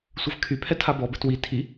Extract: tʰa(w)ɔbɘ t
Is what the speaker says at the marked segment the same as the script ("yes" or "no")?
no